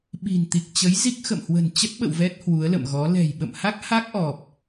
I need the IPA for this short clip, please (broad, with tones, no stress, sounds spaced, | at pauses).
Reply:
ɓ i̤˨˩ n t̪ i˨˩ k̚ t͡ɕ ə˨˦ j z i˦˥ k̚ x ə̰˧˨ m h w ə̤˨˩ n t͡ɕ ə˦˥ t̚ ɓ ə̰˧˨ w v ɛ˦˥ t̚ h w u˨˦ ə̯ l ə̰˧˨ m ɣ ɔ˨˦ l ɛ̤˨˩ j ɓ ə̰˧˨ m h a˦˥ k̚ h a˦˥ k̚ ʔ ɔ˨˩ p̚